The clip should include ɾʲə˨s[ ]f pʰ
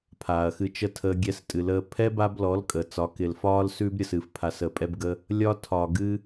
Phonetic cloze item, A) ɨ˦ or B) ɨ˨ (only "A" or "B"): B